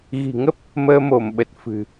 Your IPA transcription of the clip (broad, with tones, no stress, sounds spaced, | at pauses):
ɣ i̤˨˩ ŋ ə˦˥ p̚ | m əː˧ m o˧˩ m ɓ ə˨˩ t̚ f ɨ̤˨˩